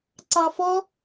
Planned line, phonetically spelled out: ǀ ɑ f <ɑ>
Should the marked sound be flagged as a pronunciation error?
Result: yes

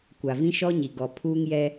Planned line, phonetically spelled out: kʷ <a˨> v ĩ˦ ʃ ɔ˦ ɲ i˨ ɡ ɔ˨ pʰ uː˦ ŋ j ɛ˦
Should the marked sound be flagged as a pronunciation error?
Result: no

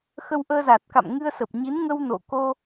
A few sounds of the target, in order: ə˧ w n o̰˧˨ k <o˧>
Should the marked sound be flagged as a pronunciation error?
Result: no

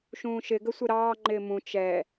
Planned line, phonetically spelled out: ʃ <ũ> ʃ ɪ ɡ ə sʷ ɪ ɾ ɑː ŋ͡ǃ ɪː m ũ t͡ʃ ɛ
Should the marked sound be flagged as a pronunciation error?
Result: yes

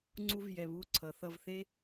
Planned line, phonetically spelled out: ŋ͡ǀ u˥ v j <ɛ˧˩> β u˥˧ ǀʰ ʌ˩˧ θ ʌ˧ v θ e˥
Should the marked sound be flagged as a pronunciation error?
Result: no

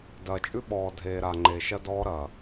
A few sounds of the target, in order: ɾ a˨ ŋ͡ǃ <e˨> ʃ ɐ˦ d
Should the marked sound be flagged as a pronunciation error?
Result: no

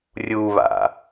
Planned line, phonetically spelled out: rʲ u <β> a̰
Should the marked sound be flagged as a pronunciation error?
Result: no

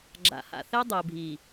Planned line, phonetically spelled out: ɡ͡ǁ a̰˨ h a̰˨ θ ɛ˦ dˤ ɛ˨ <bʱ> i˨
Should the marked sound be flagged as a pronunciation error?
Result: no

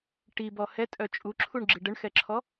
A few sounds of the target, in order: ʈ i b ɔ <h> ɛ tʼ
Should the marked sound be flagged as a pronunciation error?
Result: no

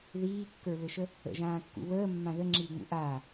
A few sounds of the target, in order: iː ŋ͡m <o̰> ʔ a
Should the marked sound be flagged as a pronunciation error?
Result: yes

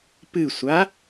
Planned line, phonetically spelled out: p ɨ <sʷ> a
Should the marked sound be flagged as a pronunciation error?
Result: no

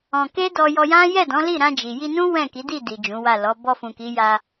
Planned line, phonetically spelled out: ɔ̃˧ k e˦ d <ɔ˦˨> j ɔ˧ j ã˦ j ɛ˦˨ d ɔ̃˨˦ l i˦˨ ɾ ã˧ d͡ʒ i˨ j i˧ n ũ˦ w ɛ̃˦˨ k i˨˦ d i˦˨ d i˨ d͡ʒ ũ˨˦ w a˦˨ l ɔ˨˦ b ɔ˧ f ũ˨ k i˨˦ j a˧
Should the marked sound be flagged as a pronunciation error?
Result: yes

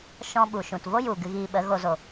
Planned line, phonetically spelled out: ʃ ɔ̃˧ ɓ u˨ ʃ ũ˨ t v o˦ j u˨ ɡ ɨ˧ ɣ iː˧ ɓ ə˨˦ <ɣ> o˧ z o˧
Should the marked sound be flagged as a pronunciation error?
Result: no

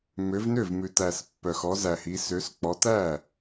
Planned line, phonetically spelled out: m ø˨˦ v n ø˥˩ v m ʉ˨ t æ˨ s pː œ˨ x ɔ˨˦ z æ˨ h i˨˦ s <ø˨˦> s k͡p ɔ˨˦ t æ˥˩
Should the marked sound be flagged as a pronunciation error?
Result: no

